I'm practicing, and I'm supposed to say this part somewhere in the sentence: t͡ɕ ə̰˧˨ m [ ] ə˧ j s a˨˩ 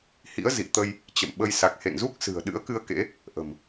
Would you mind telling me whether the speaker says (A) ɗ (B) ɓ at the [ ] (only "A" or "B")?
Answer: B